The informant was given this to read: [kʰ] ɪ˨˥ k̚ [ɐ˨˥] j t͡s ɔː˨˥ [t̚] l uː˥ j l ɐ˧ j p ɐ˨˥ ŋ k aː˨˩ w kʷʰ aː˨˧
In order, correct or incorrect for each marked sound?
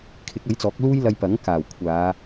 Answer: correct, correct, incorrect

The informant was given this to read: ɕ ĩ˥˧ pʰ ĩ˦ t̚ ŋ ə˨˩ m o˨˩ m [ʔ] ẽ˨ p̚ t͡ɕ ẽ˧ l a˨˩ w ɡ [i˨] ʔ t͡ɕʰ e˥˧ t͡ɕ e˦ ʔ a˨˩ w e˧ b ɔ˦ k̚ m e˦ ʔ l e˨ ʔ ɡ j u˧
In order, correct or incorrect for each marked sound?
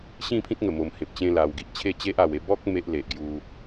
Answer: incorrect, correct

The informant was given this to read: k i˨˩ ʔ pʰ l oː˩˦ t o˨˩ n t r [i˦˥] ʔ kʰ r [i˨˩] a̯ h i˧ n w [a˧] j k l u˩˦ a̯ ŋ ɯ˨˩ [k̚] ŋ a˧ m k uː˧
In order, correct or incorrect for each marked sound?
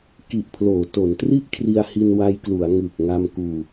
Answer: incorrect, incorrect, correct, correct

